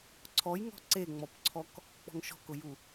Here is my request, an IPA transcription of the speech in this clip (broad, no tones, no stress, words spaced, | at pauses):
ǀʰɔjŋɔ̤ ǀeŋ͡mɔpǀʰɔk | k͡pɔ̤ŋʃɔ̤kʊju